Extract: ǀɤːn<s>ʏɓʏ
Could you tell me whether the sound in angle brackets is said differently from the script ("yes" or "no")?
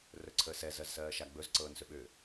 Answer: no